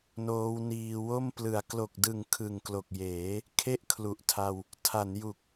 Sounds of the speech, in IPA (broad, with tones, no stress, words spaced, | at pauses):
noː˦˥wniː˧wo˥˩m plɯ˩˦a̯ klo˨˩k̚dɯ˨˩ŋ kʰɯ˨˩ŋklo˨˩k̚jeː˩˦ | kʰe˥˩ʔkʰlu˨˩ʔtʰa˧w | tʰa˩˦nju˨˩k̚